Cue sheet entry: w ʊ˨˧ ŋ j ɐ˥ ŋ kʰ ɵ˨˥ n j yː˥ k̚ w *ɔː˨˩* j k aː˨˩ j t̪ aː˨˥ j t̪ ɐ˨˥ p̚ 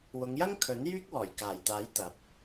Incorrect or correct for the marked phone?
correct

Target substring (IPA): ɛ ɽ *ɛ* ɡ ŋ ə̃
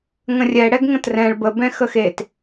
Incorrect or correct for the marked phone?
correct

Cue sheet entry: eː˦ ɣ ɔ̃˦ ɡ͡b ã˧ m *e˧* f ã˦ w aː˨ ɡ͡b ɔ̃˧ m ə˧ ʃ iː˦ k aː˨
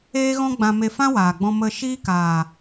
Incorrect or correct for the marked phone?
correct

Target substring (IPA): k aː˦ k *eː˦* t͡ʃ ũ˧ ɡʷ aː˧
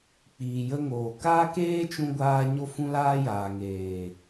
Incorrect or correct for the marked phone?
correct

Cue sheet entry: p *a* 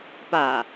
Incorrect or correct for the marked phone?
correct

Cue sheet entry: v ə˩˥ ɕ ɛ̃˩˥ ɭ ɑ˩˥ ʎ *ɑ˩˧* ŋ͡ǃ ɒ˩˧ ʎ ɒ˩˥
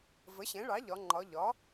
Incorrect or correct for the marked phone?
incorrect: ɒ˩˧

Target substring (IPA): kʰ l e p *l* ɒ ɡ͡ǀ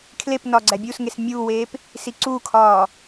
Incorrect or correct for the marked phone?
incorrect: n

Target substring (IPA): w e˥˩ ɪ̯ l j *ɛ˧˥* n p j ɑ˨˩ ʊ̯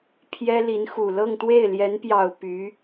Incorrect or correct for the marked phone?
correct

